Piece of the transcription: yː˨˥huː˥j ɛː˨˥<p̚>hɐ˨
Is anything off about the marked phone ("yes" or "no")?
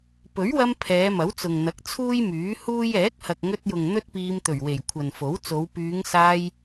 yes